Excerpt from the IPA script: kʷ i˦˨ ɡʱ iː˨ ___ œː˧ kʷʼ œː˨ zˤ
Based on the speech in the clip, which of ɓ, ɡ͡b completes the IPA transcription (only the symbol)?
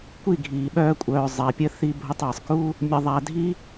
ɓ